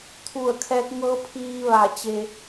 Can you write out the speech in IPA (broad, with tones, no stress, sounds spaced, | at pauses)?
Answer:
t̪ʰ u˧˩ ə̯ kʰ ɛː˧ k̚ ŋ ɤː˧˥ pʰ iː˧ ʋ a˧˩ t͡ɕ e˧